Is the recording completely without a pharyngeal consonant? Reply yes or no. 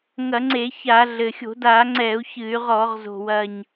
yes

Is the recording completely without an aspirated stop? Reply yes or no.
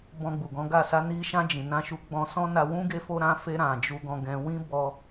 yes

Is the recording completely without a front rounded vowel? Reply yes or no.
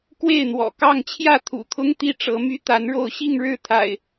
no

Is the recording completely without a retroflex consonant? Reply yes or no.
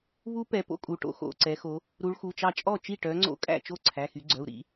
no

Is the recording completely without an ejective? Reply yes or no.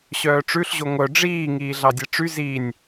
yes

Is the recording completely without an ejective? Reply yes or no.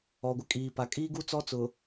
no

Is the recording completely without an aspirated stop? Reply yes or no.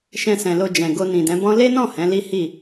yes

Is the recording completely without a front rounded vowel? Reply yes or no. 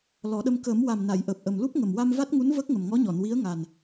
yes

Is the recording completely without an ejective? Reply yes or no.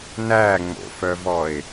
yes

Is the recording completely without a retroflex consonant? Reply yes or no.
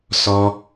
yes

